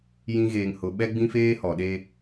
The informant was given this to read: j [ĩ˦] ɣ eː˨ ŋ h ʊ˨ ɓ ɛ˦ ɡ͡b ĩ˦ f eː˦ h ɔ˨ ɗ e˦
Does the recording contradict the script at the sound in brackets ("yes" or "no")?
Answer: no